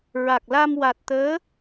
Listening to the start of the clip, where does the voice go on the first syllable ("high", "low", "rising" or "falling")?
low